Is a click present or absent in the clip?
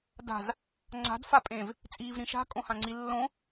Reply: present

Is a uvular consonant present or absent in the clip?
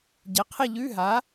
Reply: present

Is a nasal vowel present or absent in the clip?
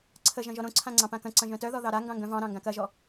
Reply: present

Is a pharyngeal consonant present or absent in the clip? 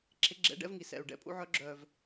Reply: present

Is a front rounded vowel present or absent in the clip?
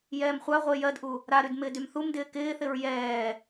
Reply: present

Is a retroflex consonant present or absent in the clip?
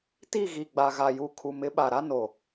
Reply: absent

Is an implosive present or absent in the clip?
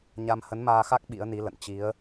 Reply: present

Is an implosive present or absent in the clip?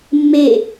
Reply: absent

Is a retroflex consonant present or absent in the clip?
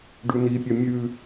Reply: present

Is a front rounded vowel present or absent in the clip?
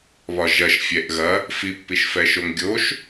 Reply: absent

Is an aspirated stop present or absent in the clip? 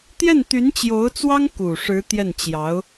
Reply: absent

